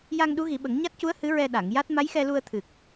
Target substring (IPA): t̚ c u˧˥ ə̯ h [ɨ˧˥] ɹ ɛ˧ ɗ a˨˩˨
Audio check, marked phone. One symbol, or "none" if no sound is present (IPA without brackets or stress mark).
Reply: ɨ˧˥